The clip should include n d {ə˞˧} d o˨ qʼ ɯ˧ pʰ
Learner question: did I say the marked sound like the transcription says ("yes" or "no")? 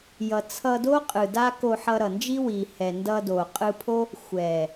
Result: no